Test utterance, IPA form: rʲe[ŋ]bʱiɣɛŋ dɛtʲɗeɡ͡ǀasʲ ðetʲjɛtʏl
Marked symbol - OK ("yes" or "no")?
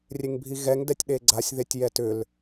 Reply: yes